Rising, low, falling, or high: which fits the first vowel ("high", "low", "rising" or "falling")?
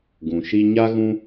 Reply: low